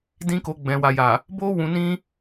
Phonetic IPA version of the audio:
d ĩ˦ k o˧ ɡ͡b ɛ̃˨ w a˨ j a˨ | b o˦ w ũ˧ n ĩ˦

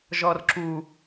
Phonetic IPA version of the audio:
ʒ ɔ r ǁ u

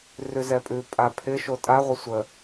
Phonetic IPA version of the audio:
r ʉ z ɛ pʼ ʉ pʼ a pʰ ɪ ʃ o tʼ a ʁʷ ʌ sʷ ə

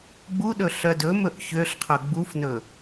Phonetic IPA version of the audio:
ɡ͡b u ɗ ɵ ɬ œ d ɵ m ɵ ʔ ç ø ɬ qʰ ɵ ɡ͡b u f n ɵ

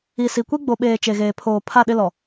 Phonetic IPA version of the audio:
i˨ s i˨ kʷ i˦ ɡ͡b o˨ ɓ eː˨ t͡ʃ e˨ ɣ eː˨ pʰ oː˨ pʰ a˦˨ ɗ ɪ˦ l ɔ˨

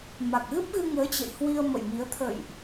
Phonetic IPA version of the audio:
m a˨˩ k̚ ɣ ɨ˦˥ p̚ ɣ ɨ˧ ŋ əː˨˦ t͡ɕ ə̰˧˨ j h w i˧ ə̯ m ə̰˧˨ j m i˨˦ ə̯ t̪ʰ ə̰˧˨ j ʔ

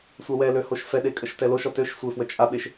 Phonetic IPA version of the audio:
sʷ a w ɛ l ø h o ʃ f ɛ ɗ e kʼ ə ʃ t ɛ l o ʃ ɔ t ø ʃ sʷ e f w ə t͡ʃʼ a ɓ e ʃ

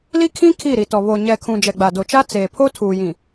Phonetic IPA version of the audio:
l i˦ kʰ ĩ˦ kʰ i˦˨ ɾ i˨ t ɔ˨ β o˨ ɲ ɛ˨ kʰ ũ˨ d͡ʒ ɛ˨ ɡ͡b a˨ d o˨ t͡ʃ a˦ t͡s eː˨ pʰ o˦ tʰ uː˨ j ĩ˨

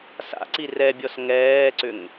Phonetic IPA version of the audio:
s a̰ ǀ i r ɛ bʲ ɔ s ŋ ɛː ǀ ʏ ŋ

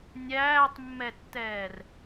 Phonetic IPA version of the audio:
nʲ æː tˤ mː ɛ tː ɛː r

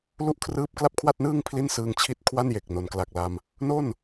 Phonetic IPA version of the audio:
l u˥˩ ʔ kʰ r ɯː˥˩ p̚ k l a˥˩ p̚ kʰ w a˥˩ t̚ n ɯː˥˩ ŋ pʰ l i˥˩ n s ɯː˧ ŋ t͡ɕʰ i˥˩ t̚ kʰ w a˥˩ n j e˨˩ k̚ n o˩˦ n k l a˨˩ k̚ l a˧ m | n o˥˩ n

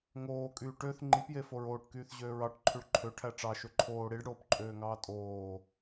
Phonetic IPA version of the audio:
ŋ oː kʼ yː ʈ ø θ ŋ͡ǃ i p j e f o ɹ oː ʈ k yː θ ʑ øː ɹ ɑ ʈ ǃʰ y ɭ ǃʰ ø ʈʰ æ ʈ͡ʂ ɑ ʃ ø ǃʰ oː ɽ i ɖ ɽ oː p ǃʼ øː ŋ ɑː tʼ oː

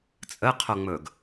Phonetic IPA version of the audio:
t͡sʼ ə qʰ o ŋ͡m ɵ ɡ

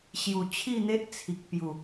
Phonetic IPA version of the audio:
ɕ j u˨˩ t͡ɕʰ i˥˧ n̪ e˦ ʔ t͡sʰ i˨ k̚ p j u˨˩

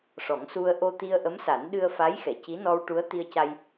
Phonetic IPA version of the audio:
ʂ ɔ˨˩˦ ŋ s u˧ ə̯ ʔ o˧ t̪ i˧ ə̯ ʔ ə˧˥ m s a˨˩˦ n ɗ ɨ˧ ə̯ f a˧˥ j x ɛ˨˩˨ c i˧˥ n ɔ˧ w ʈ u˧˥ ə̯ t̪ i˧ ə̯ c a˧ j

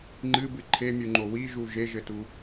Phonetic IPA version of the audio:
ŋ͡ǃ ɨ b ɨ ǃʰ e mʲ u ŋ͡ǃ o w i ʒ u ʒ e ʒ ɘ t u

